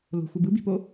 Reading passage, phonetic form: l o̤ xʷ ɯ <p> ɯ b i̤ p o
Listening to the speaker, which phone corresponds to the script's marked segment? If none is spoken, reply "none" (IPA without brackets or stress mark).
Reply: b